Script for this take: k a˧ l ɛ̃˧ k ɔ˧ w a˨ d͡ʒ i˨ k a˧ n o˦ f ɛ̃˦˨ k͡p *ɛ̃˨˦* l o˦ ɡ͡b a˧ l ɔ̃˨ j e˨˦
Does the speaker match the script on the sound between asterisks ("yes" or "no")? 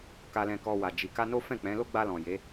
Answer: yes